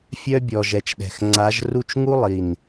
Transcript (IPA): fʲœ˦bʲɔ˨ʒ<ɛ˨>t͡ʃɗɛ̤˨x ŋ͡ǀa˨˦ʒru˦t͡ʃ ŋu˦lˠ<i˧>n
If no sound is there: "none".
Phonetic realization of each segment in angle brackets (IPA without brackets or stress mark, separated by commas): ɛ˨, i˨